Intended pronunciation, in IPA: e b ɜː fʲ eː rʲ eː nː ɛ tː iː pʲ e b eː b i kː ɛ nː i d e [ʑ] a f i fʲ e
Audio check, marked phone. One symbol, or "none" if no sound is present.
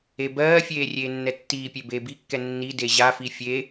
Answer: ʑ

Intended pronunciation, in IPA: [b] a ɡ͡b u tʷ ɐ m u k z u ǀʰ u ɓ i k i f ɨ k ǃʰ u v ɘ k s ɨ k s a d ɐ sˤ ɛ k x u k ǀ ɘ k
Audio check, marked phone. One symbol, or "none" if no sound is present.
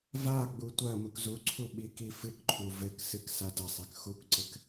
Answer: v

